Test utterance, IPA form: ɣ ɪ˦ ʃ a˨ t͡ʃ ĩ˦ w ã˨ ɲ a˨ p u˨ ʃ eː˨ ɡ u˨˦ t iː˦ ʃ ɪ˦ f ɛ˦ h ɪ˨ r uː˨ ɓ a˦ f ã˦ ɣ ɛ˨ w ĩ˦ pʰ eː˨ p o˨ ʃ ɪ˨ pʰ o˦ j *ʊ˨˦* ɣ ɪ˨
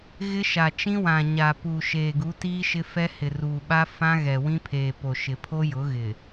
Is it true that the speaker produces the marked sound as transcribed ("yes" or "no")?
yes